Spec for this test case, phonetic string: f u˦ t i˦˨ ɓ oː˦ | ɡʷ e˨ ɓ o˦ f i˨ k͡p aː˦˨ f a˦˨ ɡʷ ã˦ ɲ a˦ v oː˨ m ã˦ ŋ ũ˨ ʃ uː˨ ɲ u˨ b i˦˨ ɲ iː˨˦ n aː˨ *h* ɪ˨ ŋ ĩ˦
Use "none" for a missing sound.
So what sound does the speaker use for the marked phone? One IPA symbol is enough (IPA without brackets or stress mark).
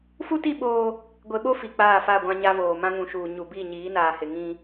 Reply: h